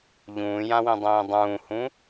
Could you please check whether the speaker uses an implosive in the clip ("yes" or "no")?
no